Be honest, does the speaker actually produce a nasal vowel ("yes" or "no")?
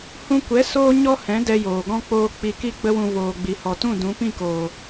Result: yes